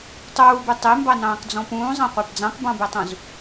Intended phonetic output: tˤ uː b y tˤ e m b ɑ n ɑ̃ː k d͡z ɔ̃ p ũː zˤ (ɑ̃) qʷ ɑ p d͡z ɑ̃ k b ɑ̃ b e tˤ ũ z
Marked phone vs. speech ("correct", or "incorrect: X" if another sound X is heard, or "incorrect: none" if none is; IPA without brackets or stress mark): correct